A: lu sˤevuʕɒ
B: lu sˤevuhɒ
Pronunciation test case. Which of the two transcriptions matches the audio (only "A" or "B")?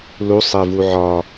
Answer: A